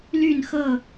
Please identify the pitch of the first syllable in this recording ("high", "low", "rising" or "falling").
falling